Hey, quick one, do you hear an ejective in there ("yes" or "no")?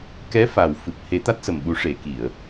no